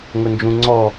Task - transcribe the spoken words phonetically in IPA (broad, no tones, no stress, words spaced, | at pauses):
ŋʊnd͡ʒũŋ͡ǀɔ